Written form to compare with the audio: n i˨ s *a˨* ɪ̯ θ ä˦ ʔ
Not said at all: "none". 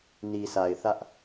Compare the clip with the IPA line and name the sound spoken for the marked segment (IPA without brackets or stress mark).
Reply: a˨